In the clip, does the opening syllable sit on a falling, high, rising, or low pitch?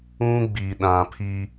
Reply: high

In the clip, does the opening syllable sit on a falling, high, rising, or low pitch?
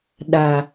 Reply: low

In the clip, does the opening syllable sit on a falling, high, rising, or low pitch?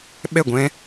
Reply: falling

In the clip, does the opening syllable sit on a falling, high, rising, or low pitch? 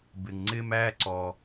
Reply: low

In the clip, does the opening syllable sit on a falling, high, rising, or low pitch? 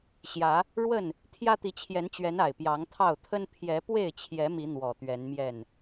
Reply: rising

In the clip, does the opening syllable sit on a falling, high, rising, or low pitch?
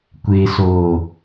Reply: low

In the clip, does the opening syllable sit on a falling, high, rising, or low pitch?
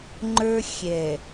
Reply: high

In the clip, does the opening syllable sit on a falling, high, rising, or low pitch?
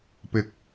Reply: high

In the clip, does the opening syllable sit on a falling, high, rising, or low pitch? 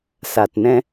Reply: low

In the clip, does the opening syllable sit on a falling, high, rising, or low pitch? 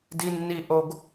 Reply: high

